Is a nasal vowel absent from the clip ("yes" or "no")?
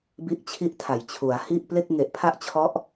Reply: yes